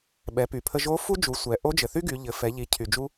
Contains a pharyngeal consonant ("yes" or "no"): no